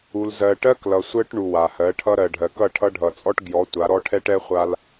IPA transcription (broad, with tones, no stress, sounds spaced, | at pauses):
u˨ l z ɜ˨ ʈ ɜ˦ k l ʌ˨ sʷ ɜ˦ ʈ ɳ u˨ w a˨ h ɜ˨˦ ʈʰ ʌ˦ ɾ ɜ˨ ɖʱ ɜ˨ k ʌ˦˨ ʈʰ ʌ˦ ɖʱ ʌ˨ t͡sʼ ɔ˦ ʈ ɡ j ɔ˨˦ tʷ a˨˦ ɾ ɔ˦ ʈʰ ɛ˦ ʈ ɛ˦ χʷ a˦ l